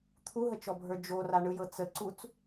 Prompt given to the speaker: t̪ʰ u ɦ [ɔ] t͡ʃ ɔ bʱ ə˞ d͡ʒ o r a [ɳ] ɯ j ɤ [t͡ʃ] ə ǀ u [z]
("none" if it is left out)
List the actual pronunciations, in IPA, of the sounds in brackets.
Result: ə, ɳ, t͡s, t͡s

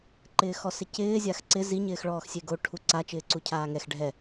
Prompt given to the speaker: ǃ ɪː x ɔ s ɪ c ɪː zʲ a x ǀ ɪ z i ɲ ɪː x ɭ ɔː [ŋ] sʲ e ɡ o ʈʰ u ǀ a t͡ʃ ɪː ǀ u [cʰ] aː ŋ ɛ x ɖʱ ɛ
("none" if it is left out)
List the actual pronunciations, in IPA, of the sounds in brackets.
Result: x, cʰ

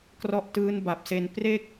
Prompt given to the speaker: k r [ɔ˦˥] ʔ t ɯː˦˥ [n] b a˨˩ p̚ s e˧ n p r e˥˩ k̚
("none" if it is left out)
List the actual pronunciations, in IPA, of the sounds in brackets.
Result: ɔ˦˥, n

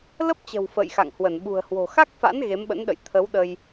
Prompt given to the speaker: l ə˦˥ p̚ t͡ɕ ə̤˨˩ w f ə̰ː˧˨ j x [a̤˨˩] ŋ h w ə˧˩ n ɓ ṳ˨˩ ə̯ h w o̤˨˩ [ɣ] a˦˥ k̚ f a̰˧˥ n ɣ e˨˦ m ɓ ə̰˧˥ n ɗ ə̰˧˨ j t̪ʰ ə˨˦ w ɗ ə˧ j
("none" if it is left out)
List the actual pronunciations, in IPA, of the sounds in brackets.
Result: a̰˧˨, x

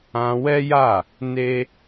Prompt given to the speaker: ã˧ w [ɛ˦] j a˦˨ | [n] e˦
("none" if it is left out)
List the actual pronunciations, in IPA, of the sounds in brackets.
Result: ɛ˦, n

